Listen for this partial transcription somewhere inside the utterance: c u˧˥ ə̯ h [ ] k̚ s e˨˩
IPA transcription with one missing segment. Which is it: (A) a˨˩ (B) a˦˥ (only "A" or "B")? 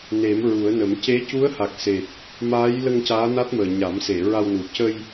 A